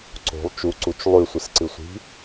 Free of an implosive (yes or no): yes